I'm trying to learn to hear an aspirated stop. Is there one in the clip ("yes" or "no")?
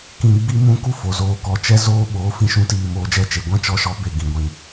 no